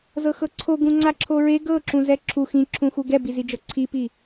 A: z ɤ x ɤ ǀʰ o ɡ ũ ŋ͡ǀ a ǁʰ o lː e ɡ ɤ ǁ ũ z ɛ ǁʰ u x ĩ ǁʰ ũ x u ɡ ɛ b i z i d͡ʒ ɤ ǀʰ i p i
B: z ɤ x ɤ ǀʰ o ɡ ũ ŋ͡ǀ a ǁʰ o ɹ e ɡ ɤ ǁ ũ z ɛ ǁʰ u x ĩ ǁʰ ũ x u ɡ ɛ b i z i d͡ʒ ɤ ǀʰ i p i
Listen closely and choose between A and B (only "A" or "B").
B